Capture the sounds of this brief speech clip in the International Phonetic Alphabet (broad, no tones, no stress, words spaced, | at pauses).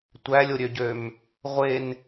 tʷælʲoɾʲøɟøm | ʁʷen